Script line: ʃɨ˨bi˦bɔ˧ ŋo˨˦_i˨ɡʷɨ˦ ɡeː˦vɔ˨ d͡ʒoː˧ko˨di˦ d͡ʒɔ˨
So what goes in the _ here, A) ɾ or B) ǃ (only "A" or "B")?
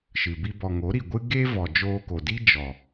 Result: A